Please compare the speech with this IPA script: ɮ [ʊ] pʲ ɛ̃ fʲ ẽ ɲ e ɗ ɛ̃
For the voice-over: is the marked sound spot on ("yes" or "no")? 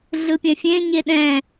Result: no